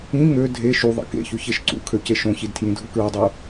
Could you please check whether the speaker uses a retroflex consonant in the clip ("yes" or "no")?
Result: no